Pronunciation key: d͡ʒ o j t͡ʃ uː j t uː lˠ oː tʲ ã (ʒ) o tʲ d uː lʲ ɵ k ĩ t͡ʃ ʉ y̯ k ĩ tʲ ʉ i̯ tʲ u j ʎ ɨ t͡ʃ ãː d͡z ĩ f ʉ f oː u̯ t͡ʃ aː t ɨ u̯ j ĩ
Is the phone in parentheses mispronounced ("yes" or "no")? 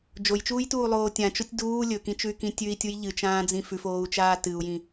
yes